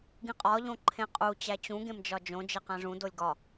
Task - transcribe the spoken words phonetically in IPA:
ɡĩqʼɒ ʎõǃʰẽqʼu t͡ɕæt͡ɕũ ɡẽmd͡ʒɒd͡ʒõ d͡ʒeqæ̃ʐũ dolʲɡɒ

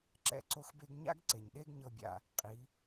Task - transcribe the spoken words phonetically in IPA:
ǁɛ̰˦ ǀo˧xbe˧ɡɲa̰˦ɡ ǀe˨ɲɗe˦ɡɲɤ˧bʲa̰˧ | qʼi˨˦

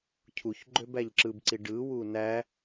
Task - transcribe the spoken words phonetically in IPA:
cʰuç ɡ͡ǃøbæʎǁɯbǀi ɖɯwu næ

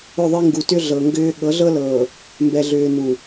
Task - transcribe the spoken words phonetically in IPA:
ʏ˦˨ðˤe˦ŋɡu˨tʏ˦ ɮɤ˨ŋɡʏː˦ ɠɤ˨˦ɮɤ˦lɤː˨ | mbɛ˨ɮʏː˨ nu˨

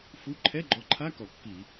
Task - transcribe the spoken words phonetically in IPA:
fu˧˥˧ ǃʰɛ˧˥˧ɡ͡ǃɔ˨˥ǃʰa˧˥˧ kɔ˧˩˧kːi˧˩˧

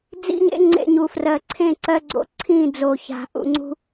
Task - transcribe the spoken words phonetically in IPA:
d͡zḭ˦ɲḛ˦ŋ͡ǀḛ˧ɲu˨ frɜ˨ǀʰẽ˦˨ǀɜ˧ɡ͡ǀo̰˧ ǀʰĩ˦˨d͡zo˨ça̤˨ ʔṵ˨ŋ͡ǀṳ˧

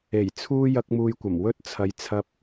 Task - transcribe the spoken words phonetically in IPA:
e˨˩jt͡sʰuː˥ jɐ˥k̚muː˧jkʷɐ˨˩m wɵ˥t̚ t͡sʰɐ˧jt͡sʰɐ˥p̚

